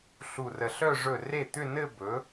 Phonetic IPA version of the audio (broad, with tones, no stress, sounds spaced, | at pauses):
ɬ u˧˩ r ə˧˩ ɬ œ˥˧ ʐ ɵ˥˩ r e˥˩ t̪ ʏ˥˧ n ɘ˥˧ b ɵ˩˥